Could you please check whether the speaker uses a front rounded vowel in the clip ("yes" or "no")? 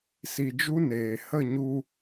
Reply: no